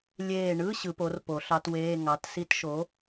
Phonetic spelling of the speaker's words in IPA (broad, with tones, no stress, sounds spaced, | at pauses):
lʲ eː˧˩ ɳ ɯ˧˥˧ ɕ ɯ˨˩˦ p o˩˥ r p o˨˩˦ ɬ ɑ˧˥ t w eː˧˥˧ ŋ ɑ˩˥ t s i˧˥ t ʃ o˩˥